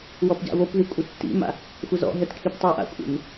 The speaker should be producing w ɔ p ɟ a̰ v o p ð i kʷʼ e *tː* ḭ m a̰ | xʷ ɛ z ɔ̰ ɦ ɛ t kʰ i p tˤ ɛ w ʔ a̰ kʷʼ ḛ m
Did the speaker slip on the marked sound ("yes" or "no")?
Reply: no